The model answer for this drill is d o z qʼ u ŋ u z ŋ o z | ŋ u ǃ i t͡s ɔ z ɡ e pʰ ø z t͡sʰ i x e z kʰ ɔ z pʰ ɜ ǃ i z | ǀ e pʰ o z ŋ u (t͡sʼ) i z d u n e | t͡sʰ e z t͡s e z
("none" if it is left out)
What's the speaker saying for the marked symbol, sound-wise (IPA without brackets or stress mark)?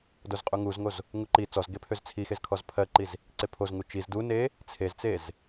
t͡ʃ